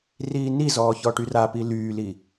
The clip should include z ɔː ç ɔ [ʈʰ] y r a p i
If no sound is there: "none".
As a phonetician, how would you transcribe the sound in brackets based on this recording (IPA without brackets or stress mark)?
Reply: ʈ